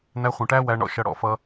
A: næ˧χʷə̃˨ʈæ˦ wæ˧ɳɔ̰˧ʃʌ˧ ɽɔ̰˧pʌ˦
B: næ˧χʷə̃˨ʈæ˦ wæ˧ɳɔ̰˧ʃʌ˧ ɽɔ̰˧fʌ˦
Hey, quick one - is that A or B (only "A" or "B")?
B